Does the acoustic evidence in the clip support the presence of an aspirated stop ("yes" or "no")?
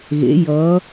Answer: no